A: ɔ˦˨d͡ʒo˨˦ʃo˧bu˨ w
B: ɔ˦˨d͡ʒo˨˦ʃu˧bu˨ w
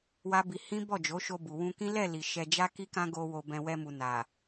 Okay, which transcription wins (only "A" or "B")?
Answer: A